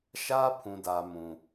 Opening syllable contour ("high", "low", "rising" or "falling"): high